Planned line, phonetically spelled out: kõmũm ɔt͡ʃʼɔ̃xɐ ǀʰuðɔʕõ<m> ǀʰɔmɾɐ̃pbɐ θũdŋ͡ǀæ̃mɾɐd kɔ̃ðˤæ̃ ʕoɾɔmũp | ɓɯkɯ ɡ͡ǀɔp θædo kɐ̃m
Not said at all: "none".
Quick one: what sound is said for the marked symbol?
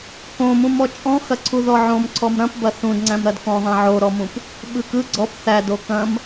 m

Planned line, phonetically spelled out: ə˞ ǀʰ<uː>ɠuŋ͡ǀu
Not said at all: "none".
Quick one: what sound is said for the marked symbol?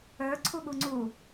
u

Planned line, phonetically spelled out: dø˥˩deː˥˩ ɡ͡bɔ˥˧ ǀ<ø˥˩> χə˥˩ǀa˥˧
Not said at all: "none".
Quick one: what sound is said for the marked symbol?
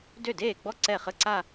ɛ˥˩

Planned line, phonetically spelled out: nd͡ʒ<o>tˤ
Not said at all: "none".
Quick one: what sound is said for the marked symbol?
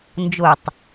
o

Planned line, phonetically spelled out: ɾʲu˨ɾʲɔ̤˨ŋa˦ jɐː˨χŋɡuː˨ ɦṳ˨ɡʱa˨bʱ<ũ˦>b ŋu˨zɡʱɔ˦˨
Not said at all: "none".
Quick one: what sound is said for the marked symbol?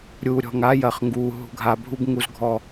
u˦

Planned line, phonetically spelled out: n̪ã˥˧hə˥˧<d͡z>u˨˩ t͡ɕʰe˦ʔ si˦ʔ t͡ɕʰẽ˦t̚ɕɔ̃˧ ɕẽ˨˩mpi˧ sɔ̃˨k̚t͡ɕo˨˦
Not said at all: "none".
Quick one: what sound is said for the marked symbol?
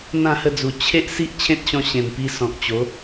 d͡z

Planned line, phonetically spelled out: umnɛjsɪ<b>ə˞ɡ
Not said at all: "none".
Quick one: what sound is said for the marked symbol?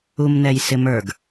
m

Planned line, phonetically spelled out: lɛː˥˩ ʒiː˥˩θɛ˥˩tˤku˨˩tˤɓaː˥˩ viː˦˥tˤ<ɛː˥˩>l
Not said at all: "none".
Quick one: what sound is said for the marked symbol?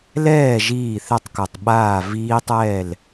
ɛː˥˩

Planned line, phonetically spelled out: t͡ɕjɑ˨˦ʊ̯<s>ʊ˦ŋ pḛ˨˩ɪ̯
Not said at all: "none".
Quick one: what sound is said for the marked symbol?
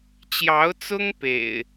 t͡s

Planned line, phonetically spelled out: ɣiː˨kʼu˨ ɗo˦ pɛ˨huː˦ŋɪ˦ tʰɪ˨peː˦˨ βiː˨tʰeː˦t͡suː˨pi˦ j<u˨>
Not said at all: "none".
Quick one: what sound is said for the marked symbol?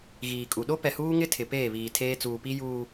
uː˨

